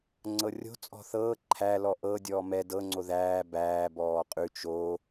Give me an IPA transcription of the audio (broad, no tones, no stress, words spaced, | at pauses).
ŋ͡ǀɤrʲo̤ t͡sʼɔ̤θɤː ǃʰæ lɔʔɤ dʲɔːmɛ dɤ ŋ͡ǀoðæː bæː bɔːqʼʉ t͡ʃo